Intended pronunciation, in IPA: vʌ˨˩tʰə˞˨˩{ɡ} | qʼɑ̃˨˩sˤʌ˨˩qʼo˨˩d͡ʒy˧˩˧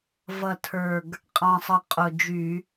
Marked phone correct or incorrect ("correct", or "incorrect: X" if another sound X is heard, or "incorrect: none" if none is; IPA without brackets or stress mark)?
correct